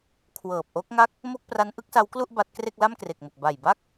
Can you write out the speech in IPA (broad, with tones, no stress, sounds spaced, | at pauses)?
kʰ w ɤː˨˩ p̚ ʔ o˦˥ k̚ ŋ a˥˩ k̚ | m o˥˩ k̚ p r a˦˥ n ʔ ɯ˦˥ k̚ s a˦˥ w k l u˥˩ ʔ b a˦˥ t̚ k r e˥˩ k̚ l a˥˩ m k r e˨˩ k̚ m o˨˩ k̚ b a˨˩ j b a˥˩ k̚